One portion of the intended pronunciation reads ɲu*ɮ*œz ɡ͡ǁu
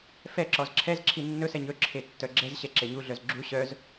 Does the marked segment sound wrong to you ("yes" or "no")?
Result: no